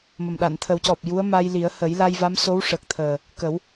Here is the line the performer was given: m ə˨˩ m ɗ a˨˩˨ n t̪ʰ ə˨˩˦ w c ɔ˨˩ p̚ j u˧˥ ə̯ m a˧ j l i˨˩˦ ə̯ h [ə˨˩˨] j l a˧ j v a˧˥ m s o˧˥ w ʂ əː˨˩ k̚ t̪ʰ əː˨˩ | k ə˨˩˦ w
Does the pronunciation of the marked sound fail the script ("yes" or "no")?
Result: yes